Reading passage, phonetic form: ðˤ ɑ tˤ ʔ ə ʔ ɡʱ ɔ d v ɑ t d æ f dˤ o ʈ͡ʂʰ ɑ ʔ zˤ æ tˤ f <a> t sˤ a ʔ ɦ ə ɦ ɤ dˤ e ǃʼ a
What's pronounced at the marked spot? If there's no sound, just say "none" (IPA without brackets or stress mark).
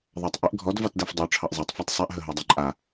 æ